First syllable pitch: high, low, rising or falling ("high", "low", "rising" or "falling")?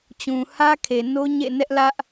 low